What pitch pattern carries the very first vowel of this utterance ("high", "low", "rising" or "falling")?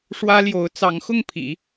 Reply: high